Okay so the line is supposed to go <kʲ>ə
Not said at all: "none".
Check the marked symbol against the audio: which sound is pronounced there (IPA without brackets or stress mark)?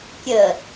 kʲ